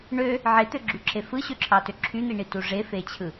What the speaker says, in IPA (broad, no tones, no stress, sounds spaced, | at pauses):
ɳ ø | ʕ e t̪ ø ɡ͡ǁ y ǁ e f ɯ ɕ ø ǁʰ ɑ t ø ǁʰ y n̪ i ɳ i t u ʐ e f e t͡ɕʰ ɯ